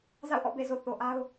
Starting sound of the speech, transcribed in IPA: z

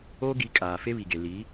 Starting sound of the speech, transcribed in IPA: oː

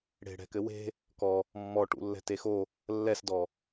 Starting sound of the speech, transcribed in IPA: ɽ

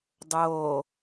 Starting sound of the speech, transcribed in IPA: dˤ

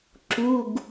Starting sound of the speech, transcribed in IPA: ǁ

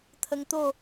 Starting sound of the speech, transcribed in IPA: t̪ʰ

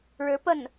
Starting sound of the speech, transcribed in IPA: ɻ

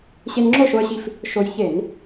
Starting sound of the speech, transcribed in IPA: ɕ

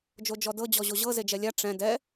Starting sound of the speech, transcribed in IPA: d͡ʒ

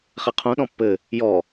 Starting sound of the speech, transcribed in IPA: χ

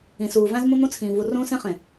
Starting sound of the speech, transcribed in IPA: ĩ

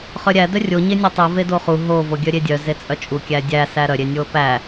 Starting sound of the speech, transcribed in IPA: χ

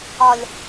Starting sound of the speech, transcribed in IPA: ɒ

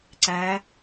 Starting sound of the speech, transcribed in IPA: ǀ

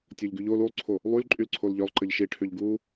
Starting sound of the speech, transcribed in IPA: tʲ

